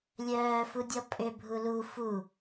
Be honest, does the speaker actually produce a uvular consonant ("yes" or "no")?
no